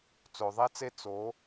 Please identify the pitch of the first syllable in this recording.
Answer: low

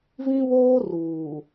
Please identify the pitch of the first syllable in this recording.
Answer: high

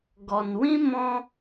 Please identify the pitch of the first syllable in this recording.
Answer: low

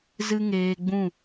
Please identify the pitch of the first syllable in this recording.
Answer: high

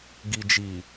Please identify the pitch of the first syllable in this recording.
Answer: low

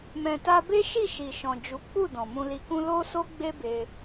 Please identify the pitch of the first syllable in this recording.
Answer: low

